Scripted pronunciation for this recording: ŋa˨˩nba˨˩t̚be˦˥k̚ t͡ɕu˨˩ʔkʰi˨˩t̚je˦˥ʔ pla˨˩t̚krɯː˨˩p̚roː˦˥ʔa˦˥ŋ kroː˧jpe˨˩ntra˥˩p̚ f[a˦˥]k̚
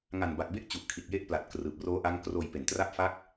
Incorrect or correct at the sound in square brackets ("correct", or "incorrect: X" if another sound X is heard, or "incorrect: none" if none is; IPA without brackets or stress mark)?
correct